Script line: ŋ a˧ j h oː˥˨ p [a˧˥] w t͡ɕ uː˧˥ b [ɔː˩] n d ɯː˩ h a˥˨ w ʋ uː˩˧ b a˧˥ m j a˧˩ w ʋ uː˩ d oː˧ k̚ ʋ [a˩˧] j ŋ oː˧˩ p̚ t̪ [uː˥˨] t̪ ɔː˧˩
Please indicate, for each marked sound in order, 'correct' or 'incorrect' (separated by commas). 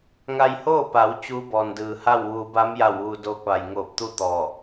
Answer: incorrect, correct, incorrect, incorrect